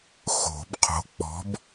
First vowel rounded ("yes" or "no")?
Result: yes